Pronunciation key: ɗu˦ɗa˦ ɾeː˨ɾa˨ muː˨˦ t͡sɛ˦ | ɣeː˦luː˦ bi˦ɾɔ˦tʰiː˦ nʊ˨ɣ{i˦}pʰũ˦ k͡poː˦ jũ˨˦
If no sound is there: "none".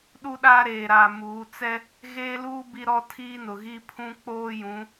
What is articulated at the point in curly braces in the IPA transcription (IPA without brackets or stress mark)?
i˦